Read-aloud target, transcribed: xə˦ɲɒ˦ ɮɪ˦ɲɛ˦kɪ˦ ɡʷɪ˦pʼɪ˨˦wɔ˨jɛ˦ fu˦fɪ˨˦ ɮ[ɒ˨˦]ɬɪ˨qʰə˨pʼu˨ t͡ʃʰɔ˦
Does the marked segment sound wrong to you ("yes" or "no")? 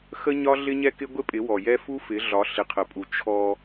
no